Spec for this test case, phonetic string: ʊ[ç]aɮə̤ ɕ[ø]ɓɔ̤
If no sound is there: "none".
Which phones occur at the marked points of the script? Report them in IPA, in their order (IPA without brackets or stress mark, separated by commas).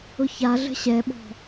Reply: ç, ɛ